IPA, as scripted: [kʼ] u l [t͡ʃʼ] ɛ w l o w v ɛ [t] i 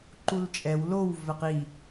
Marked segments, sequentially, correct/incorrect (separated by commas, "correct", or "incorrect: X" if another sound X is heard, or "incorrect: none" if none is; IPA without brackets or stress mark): incorrect: ǃ, correct, incorrect: q